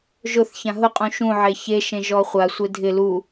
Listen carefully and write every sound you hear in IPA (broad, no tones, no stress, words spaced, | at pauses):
ʒʊθçã ɦʊqʼũ ʃũ ʕeçeʃẽ ʒɔχʷasʷe dʱɪ lu